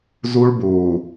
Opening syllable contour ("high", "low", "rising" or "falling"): high